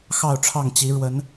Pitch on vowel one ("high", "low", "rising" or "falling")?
falling